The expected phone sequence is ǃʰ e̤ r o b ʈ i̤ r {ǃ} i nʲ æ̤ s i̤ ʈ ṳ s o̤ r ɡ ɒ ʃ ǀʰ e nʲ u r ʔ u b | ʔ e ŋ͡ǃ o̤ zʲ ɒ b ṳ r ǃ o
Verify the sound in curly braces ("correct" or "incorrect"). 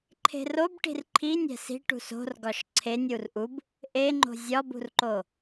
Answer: incorrect